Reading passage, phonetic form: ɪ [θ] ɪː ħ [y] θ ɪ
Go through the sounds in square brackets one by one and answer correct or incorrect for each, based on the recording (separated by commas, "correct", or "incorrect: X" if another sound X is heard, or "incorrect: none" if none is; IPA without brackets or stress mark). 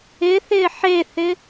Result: correct, incorrect: e